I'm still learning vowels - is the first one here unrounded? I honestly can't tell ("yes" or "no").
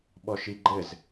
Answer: no